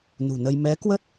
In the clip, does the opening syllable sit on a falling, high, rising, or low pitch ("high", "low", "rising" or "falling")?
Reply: low